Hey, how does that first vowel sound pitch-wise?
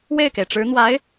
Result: falling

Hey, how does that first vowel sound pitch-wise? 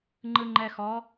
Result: low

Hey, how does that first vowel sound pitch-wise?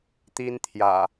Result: high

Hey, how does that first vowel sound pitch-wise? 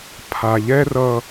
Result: low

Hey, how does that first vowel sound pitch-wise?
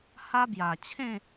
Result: high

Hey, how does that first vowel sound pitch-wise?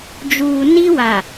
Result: low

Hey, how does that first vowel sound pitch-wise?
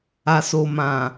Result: low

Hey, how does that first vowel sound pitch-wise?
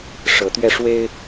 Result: rising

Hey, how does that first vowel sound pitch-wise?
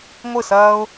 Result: falling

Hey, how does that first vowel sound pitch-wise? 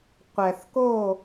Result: low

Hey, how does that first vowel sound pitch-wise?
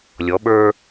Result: rising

